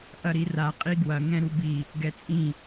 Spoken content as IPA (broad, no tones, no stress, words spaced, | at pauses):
ʔɐɾira qʼiɡwɐ ŋɛ̃ɾubi | ɡɛt͡sʼĩ